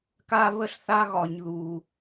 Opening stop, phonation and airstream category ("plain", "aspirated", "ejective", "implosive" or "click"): plain